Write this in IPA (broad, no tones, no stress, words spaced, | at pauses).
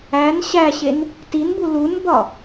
æn ɕæɕen | tinbu lunbɒ